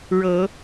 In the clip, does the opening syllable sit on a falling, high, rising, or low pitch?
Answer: rising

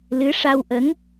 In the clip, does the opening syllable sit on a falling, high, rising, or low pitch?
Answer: rising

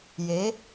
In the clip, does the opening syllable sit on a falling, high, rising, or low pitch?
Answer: rising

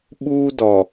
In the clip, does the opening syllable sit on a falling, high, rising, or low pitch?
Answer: high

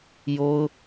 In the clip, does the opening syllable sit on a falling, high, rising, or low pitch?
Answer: high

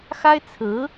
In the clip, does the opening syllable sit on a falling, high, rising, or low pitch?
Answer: high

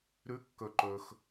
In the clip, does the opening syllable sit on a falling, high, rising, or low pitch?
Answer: rising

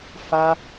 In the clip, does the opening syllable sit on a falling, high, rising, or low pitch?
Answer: high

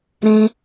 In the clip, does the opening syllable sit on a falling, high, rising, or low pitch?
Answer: high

